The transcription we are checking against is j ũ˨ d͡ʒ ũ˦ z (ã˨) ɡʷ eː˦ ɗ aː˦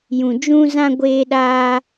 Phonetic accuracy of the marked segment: incorrect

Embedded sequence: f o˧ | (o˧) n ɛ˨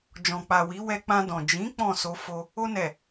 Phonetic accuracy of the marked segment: correct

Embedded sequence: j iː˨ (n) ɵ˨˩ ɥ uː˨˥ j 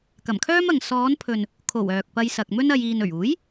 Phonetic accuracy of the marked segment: correct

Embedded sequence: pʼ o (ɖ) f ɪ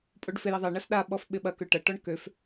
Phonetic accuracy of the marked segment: correct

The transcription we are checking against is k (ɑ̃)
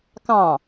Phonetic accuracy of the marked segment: correct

